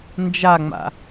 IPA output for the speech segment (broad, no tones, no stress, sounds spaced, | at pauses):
n d͡ʒ a ŋ͡m a̰